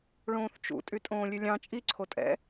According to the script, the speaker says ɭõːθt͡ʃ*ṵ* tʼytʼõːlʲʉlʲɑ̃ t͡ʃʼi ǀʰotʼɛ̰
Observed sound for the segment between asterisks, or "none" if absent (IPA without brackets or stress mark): ṵ